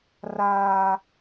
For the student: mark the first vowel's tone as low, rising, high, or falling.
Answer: low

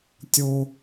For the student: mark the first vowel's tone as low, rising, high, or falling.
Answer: high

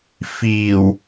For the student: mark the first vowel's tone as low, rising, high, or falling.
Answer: low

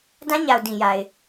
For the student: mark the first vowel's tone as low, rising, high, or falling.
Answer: high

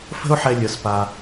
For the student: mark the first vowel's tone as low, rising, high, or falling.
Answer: high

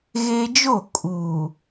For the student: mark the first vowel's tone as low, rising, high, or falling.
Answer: high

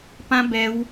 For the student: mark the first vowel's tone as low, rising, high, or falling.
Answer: high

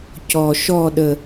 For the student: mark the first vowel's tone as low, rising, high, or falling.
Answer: low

